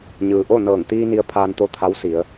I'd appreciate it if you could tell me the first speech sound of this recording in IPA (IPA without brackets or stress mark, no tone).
ɲ